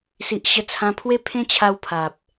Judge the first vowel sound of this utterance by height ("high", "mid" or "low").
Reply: high